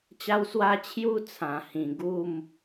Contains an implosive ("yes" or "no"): no